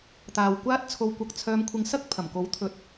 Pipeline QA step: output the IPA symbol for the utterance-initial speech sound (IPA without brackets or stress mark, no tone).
t̪